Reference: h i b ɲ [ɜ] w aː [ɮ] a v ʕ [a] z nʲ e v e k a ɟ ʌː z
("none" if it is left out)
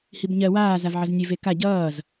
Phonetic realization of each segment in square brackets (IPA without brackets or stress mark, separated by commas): ɜ, z, ʌ